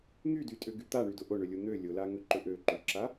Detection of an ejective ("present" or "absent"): present